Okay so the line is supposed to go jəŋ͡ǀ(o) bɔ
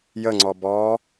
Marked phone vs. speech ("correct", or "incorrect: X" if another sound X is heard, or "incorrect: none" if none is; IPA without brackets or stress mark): incorrect: ɔ